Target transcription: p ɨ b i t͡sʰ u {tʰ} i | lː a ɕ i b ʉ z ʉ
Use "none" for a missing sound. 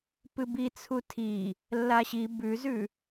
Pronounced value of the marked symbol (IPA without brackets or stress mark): tʰ